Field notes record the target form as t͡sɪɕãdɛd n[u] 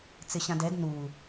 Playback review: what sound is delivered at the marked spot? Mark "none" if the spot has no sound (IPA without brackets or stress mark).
u